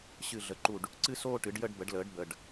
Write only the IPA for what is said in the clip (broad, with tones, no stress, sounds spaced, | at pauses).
ɕ ɨ˧˩ ɮ ə˩˥ ǃ u˧˩ ɖ | ǀ ɨ˥˧ s oː˥˧ ʈ ɨ˩˥ ɖ j ə˥˧ ɖ b ə˩˥ ɖ l əː˩˥ ɖ b ə˩˧˩ ɖ